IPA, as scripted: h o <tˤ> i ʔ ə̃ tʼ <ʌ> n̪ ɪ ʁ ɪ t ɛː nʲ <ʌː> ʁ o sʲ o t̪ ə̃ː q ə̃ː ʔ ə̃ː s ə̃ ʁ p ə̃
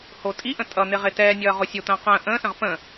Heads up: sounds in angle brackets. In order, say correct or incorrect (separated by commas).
incorrect, correct, correct